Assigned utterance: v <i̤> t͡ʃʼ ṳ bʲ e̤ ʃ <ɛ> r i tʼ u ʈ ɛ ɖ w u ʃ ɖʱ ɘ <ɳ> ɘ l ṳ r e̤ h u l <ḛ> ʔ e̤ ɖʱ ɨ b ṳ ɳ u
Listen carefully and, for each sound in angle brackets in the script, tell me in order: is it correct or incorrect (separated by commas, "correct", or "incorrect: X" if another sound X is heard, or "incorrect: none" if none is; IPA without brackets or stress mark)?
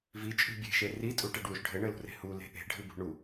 incorrect: i, incorrect: e, correct, incorrect: e̤